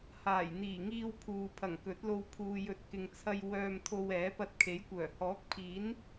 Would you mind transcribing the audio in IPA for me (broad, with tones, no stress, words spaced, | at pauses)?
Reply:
haː˨˩jn̪iː˨˩ŋiː˧wpʰuː˨ pʰɐ˨˩ŋkɵ˨˥t̚lo˧w pʰuː˨jɵ˨t̚ kɪ˨ŋt͡sʰɐ˧j wœː˧mt̪ʰo˧wɛː˨˥ pɐ˧t̚kʰe˨˥jkʷœː˨˩ hɔː˨˥k̚pʰiː˨˥n